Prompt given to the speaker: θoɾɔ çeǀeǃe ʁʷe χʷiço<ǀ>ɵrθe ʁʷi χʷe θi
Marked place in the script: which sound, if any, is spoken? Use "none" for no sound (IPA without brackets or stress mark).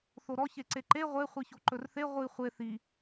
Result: ǃ